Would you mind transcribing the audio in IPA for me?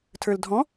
tʰ ə˞ l dʱ ɔ̃

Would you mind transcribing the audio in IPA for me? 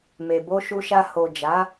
m e˨ b o˧ ʃ u˧ ʃ a˧ h o˨ d͡ʒ a˨˦

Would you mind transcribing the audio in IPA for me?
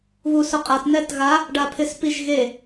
β u s ʊ qʼ a t n̪ ɛ t ɣ a | ɖ a pʰ ɪ s p i ʒ ɣ e

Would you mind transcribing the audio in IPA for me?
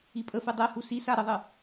i pʼ ə f y dˤ ɛ h u s i s a ɾ ə ðˤ i

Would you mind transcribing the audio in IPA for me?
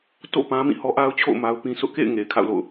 t o̰˦˨ p ã˦ m ĩ˦˨ h ɔ˦ ʔ a˦ ʊ̯ t͡ɕʰ o̰˦˨ ʊ̯ m a˦ ʊ̯ p ĩ˦ sʰ ʊ˦ ʔ k ḛ˦˨ ɪ̯ ŋ e˨ ɪ̯ kʰ a̰˦˨ ʊ̯ l o̰˦˨ ʊ̯

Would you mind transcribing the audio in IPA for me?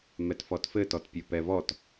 m ɛ t f ɔ t f ɘ t ɔ t pʲ ɵ p ɛ v ɔ t

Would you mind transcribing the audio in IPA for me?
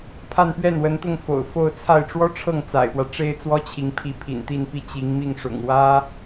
pʰ a˥˧ n p ɥ ɛ˥˩ n w ə˧˥ n t̪ ʊ˥˩ ŋ f o̰˨˩ ʊ̯ f o˥˧ ʊ̯ t͡sʰ a˥˩ ɪ̯ ʈ͡ʂ w ɔ˥ ʈ͡ʂʰ ɤ˥˩ ŋ t͡s a̰˨˩ ɪ̯ p w ä˦ ʈ͡ʂ e˥ ɪ̯ t͡s w ɔ˥ t͡ɕʰ i˧˥ ŋ pʰ i˧˥ pʰ ḭ˨˩ n t̪ i˥˧ n p i˥˩ t͡ɕ i˧˥ ŋ m i˥˩ ŋ ʂ ʊ̰˨˩ ŋ w ä˥

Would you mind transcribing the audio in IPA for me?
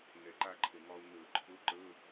ŋ ɛ˨˩ ǃ a˥˧ ǃʼ ə˧˩˧ ŋ ɒ˧ o̯ ŋ əː˧˩˧ ǃʰ o˧˥˧ ǃ ə˧˥˧

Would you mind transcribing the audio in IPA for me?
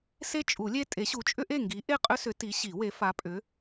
s e˥ t͡ʃʼ u˨˩˦ lʲ e˥ tʼ e˨˥ ɕ u˨˥ t͡ʃʼ ʏ˥ ʔ e˥˨ ŋ ɡ i˨˥ ʔ e˥˨ qʼ ʏ˥ s ʏ˨˥ t i˨˥ ɕ i˨˩˦ w e˨˥ f a˨˥ pʼ ʏ˨˥

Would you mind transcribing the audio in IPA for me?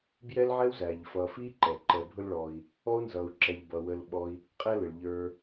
b j ɛ˥ l ʕ ɛ˥ w z æː˩ ʎ f ʌː˨ f iː˥ ǃ ɛ˩ ǃ ɛ˨ bʱ ʊ˦ l ɭ ɔ˨ i̯ | ɔ˥ u̯ n z ʌː˨ u̯ ǁ ɛ˨ ʎ b ʌ˨ w ə˨ l ɓ ɔ˨ i̯ | qʼ ɛ˦ l ə˩ ɭ ʎ ə˞˨

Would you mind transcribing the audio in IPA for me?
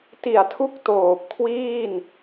t i˨˩ a̯ tʰ u˦˥ k̚ t oː˨˩ p̚ kʰ w iː˥˩ n

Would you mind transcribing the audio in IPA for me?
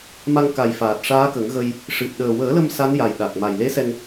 m a˧ ŋ k a˨˩ j f aː˨˩ t̚ ʂ aː˧˥ k ə˨˩˦ ŋ ɣ ə˧ j | ʂ ɨ˨˩ t̚ ɗ əː˨˩ w əː˨˩˦ l ə˧ m s a˧˥ n j a˨˩ j ɗ a˨˩ k̚ m a˨˩ j l e˧˥ s ɛ˧ ŋ

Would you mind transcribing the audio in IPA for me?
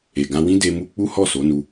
e˨ ɡ ã˧ w ĩ˦ d e˧ m u˦ k͡p u˦ h ɔ˦˨ s o˨˦ n u˧

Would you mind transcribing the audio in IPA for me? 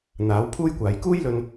n̪ aː˨˥ w pʰ uː˥ j kʷ aː˨˧ j k uː˥ j l ɵ˧ n

